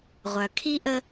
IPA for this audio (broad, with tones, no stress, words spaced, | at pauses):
ʁʷœ˨ kʰi˦ʔə˦